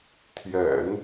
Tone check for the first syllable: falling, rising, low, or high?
low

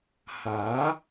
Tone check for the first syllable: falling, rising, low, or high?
rising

